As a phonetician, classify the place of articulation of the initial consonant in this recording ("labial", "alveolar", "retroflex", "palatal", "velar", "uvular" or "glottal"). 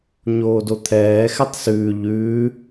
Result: palatal